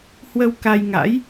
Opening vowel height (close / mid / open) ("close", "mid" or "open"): mid